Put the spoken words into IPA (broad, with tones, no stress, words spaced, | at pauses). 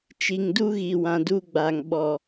t͡ʃi˨ŋdu˦ɣi˨ wã˨du˦ɡ͡ba˨ŋ ɓɔ˨